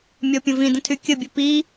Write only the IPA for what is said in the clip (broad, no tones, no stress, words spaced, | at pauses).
mʲɔpʲə̃vĩdə̃ tʰykʲəbʲə pi